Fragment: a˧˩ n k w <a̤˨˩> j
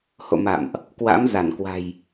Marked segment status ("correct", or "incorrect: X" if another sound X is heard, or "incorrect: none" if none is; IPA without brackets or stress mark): correct